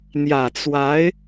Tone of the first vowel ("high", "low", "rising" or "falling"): low